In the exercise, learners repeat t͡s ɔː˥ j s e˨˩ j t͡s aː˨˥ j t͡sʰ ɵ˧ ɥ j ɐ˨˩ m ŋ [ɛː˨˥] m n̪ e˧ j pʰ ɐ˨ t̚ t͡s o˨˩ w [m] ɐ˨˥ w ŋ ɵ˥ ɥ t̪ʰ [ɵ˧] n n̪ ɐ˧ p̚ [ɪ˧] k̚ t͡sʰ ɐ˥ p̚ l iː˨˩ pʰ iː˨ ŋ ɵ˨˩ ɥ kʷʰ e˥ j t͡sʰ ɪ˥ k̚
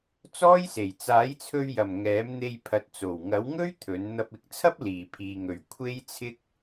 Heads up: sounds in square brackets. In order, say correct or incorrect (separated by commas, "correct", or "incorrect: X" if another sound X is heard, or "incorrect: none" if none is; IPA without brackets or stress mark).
correct, incorrect: ŋ, incorrect: ɵ˨˥, incorrect: ɪ˨˥